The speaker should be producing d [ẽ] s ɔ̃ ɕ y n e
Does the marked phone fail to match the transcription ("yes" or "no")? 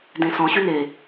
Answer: no